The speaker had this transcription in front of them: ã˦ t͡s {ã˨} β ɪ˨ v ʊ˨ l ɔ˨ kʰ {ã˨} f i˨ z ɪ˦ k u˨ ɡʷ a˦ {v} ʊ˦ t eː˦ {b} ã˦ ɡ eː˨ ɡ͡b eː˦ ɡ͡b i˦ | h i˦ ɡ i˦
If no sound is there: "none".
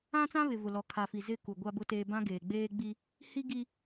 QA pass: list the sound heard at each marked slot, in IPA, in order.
ã˦, a˨, b, b

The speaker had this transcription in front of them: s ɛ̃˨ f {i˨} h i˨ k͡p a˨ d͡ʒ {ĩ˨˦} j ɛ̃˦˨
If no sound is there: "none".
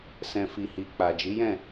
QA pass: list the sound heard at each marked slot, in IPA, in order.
i˨, i˨˦

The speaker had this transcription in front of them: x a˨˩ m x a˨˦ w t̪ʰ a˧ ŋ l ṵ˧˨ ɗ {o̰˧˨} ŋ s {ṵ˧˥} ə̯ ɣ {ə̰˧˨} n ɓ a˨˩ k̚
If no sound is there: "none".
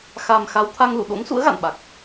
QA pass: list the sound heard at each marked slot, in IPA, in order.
o̰˧˥, ṵ˧˥, a̰˧˨

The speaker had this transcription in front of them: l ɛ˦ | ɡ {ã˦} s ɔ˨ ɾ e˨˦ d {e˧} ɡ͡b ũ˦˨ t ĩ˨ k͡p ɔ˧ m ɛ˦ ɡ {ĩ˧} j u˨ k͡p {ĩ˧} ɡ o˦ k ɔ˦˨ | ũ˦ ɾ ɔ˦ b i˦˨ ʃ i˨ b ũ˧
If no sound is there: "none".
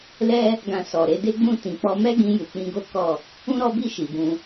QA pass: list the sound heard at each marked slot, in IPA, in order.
ã˧, e˦, ĩ˧, ĩ˧

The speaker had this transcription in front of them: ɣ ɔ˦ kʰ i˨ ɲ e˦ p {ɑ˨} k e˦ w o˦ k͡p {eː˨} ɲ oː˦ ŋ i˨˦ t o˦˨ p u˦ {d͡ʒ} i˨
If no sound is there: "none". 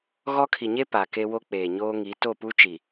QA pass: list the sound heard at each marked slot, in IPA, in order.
a˨, eː˨, t͡ʃ

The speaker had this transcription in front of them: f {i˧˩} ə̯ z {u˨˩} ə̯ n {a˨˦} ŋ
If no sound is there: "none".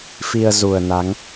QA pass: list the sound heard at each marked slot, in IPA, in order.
i˧, u˨˩, a˨˦

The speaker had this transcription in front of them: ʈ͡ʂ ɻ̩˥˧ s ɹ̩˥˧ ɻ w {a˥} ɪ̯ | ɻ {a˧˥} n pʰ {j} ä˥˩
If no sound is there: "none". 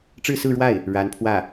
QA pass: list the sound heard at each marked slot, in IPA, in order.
a˥˩, a˧˥, w

